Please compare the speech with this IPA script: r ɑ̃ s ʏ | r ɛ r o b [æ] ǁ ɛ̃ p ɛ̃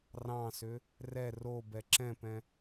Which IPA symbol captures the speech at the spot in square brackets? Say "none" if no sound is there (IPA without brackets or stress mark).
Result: ɛ